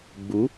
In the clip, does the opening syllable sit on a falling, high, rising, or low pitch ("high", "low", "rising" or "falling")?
rising